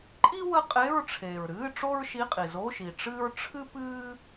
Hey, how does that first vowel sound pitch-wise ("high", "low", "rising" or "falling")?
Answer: high